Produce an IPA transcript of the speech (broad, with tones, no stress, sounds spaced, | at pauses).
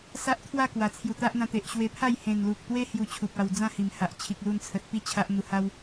s a˦ ʔ t̪ʰ w a˥˧ k w a˨˩ t͡sʰ j u˨˩ t̪ a˦ ʔ n̪ ã˧ t̪ e˨ ʔ ɕ w e˧ pʰ a˥˧ j h ẽ˨˩ n l u˨ k̚ t̪ w e˦ h j u˧ t͡ɕʰ u˨ p̚ a˧ w d͡z ã˥˧ h i˨˩ m h a˨ ʔ t͡ɕʰ i˨ k̚ l u˧ n t͡sʰ ə˨ t̚ p i˦ t͡ɕʰ a˦ ʔ n̪ u˧ h a˦ w